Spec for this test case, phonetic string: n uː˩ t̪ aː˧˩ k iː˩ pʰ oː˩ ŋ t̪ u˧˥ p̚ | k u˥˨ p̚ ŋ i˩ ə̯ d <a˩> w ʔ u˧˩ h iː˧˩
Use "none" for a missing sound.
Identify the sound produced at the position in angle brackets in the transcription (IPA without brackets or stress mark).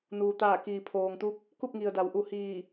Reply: a˩